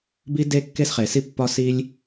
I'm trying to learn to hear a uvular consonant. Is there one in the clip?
yes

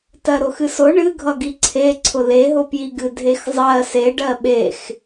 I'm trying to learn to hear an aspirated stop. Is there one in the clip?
yes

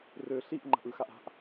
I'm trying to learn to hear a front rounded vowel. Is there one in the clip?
yes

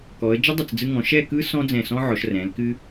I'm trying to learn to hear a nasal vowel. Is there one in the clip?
yes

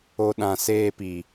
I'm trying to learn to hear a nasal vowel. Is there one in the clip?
yes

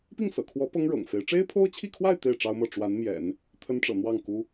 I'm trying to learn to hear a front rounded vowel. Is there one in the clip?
no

